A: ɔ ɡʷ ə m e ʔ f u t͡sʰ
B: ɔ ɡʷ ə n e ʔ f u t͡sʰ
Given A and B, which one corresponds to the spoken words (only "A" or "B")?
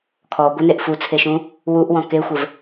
B